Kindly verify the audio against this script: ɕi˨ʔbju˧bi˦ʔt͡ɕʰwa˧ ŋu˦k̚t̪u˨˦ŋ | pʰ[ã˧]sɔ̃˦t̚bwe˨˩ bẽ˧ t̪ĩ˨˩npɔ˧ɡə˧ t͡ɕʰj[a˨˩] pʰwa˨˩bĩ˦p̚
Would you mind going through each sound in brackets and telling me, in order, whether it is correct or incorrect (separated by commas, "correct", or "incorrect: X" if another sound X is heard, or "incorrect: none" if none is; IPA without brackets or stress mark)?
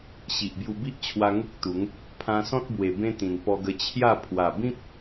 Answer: correct, incorrect: a˥˧